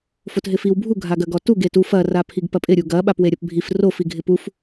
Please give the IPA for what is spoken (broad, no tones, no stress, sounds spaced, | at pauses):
f o t ɦ ɪ f i w bʱ u ɡʱ a ɡ ɐ ɡ ɔ t u ɡ e t u f ɐ r a pʰ i ɡ p ɐ pʼ ɪ ɾʲ u ɡ ɐ ɓ a p w e ɾʲ ɐ p bʱ i f r o f i ɡʱ ɪ p u f